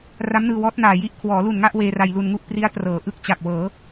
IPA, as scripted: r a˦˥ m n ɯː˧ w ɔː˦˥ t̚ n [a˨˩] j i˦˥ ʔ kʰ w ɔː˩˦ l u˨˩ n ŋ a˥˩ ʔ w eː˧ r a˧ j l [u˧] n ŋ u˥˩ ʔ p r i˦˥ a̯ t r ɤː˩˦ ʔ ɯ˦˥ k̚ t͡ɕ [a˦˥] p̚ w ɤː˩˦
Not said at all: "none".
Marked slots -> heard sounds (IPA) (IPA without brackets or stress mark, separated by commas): aː˨˩, u˧, a˨˩